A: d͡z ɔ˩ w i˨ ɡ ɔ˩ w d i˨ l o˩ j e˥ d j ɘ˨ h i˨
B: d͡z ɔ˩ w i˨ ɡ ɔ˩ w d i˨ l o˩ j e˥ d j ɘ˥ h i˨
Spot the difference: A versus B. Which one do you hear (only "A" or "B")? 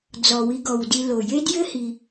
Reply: B